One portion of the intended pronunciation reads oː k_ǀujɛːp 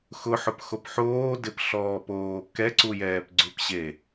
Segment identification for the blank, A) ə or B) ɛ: B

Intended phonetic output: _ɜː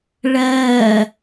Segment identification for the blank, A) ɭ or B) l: A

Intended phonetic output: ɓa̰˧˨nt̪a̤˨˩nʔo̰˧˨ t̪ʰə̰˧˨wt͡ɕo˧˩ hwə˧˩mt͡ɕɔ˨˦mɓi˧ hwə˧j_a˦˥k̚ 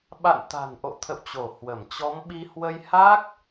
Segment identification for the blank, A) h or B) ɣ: A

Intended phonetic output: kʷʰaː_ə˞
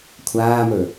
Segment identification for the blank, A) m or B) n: A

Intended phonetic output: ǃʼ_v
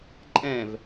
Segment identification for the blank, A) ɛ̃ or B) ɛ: A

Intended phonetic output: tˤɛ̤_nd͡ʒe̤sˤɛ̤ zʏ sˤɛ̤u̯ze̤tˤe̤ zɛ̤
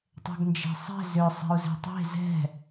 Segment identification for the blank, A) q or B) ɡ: B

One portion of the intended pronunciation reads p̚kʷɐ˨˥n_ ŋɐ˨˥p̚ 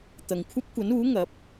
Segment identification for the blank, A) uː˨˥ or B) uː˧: A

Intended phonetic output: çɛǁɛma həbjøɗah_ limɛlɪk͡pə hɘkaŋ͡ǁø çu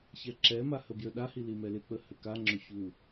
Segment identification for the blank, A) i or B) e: A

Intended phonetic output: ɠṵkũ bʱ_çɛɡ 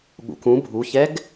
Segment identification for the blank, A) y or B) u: B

